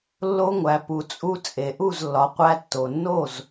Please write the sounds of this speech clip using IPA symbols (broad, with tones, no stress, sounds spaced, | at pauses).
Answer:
lː o˧ ŋʷ æ˩ p u˩ t͡sʼ u˧ t͡sʼ e˩ ʔ u˥˩ z lː ɒ˩ qʷ æ˧ tː o˩ nː o˥˩ z